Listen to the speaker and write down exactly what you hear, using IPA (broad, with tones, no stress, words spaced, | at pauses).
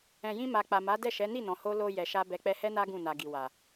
ɛ̃˨jĩ˧ma˨ k͡pa˨ma˨˦dɛ˦˨ʃɛ˨˦ ni˦˨nɔ̃˨ho˧ lo˨ jɛ˨ʃa˧ bɛ˨k͡pɛ˧hɛ˦na˦ ɡũ˦˨na˨ɡi˨wa˨